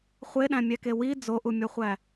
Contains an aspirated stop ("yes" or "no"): no